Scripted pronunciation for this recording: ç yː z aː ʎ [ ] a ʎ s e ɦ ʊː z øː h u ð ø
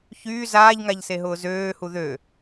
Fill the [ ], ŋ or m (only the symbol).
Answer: ŋ